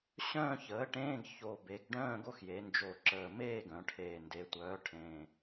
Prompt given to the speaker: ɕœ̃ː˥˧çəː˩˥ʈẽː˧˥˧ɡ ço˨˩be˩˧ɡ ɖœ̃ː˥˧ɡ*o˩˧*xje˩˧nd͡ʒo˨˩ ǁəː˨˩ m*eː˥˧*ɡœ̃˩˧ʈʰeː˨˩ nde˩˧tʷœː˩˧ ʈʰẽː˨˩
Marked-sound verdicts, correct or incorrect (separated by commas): incorrect, correct